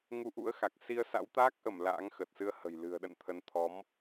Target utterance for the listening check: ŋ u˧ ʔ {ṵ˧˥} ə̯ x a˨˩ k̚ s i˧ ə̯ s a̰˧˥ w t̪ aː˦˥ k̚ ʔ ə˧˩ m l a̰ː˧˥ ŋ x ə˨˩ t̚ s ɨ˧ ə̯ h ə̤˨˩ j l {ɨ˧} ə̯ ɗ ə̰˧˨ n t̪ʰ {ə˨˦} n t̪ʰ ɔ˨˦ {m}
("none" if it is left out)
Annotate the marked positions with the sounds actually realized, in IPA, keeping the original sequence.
ṵ˧˥, ɨ̤˨˩, ə˨˦, m

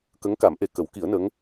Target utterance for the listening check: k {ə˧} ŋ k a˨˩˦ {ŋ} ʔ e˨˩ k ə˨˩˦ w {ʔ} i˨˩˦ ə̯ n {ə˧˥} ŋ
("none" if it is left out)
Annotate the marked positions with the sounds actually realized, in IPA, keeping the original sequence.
ə˧˥, m, k, ə˧˥

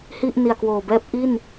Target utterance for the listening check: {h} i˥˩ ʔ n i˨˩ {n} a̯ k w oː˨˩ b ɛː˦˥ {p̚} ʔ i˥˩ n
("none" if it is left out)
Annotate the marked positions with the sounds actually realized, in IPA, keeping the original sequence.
h, none, p̚

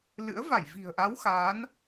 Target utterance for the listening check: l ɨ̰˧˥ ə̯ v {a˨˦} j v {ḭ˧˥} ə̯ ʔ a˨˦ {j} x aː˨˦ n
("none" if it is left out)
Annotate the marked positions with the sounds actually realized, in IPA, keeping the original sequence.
a˧˩, i̤˨˩, w

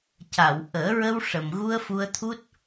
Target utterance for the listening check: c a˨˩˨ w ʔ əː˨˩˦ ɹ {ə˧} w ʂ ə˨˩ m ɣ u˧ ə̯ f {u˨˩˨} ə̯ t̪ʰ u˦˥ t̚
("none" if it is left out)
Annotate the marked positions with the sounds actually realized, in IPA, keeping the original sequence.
ə˧, u˧

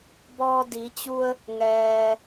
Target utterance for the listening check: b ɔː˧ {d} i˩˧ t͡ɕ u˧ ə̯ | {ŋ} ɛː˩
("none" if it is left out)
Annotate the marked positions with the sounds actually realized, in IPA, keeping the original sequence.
d, ŋ

